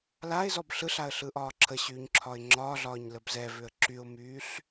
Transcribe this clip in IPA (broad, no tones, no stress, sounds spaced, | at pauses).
l a ɪ̯ z ɔ b ɬ ɯ ɬ a ə̯ ɬ ɯ ʔ ɒː ǁʰ ə ɕ yː ɲ ǁʰ ɒ ɪ̯ ŋ͡ǁ ɒː ɮ ɒː ɲ l ə b z ɛ v ʏ ə̯ ǁ y ʊ̯ m yː ɬ